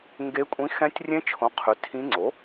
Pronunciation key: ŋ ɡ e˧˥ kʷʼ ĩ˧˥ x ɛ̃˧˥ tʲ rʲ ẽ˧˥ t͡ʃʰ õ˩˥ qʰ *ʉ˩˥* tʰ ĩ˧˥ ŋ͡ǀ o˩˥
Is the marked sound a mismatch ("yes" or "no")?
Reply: no